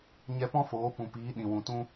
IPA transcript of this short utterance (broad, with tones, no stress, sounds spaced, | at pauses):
ɲ ɛ˧ p ɔ̃˦ f oː˨˦ p ũ˨ p iː˨˦ ɗ ĩ˨ w ũ˨ t ũ˦